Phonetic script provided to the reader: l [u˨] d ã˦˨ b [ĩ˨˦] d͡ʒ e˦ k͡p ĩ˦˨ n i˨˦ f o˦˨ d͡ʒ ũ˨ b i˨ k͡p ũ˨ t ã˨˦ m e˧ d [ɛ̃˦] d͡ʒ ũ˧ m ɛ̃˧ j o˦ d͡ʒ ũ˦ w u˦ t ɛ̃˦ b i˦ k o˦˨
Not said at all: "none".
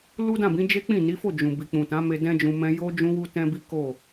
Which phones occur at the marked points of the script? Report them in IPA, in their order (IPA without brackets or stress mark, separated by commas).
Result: u˦, ĩ˨˦, ɛ̃˦